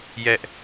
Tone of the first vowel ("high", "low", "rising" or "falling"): high